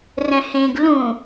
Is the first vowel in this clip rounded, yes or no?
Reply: no